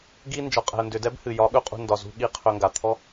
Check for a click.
absent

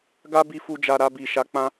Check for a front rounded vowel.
absent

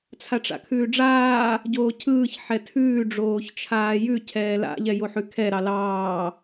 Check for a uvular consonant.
absent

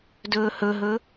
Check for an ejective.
absent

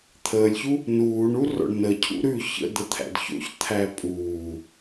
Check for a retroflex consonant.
present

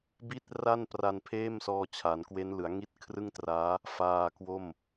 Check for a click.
absent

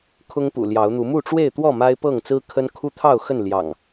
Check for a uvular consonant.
absent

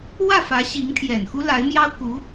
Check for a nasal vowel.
absent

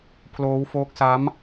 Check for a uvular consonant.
absent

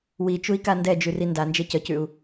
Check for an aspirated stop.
absent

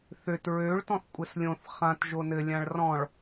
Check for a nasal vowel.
present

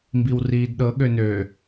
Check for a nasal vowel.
absent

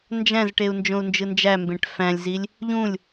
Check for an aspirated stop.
absent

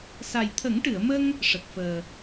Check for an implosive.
absent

